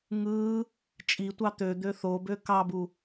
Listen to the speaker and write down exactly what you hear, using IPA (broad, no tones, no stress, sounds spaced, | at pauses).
ŋ ɯː | t͡ʃʼ i tʷ ɑ t̪ ø d̪ ø θ o b ø k ɑ b u